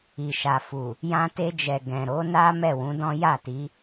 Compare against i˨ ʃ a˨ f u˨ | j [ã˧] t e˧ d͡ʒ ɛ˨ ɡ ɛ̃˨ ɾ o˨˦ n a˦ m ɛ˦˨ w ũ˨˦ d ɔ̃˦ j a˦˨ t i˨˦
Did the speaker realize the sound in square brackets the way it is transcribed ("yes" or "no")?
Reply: yes